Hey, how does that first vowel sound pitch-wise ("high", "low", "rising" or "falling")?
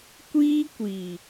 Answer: high